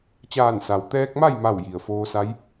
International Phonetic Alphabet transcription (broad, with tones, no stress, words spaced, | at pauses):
t͡ɕaː˧˩nsa˩wt̪ɛː˧k̚ma˥˨j ma˥˨wji˩ə̯ foː˧sa˧˥j